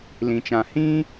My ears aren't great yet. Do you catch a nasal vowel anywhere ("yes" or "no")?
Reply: yes